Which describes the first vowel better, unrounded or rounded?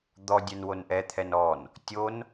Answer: rounded